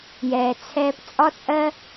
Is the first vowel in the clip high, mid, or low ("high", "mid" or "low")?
mid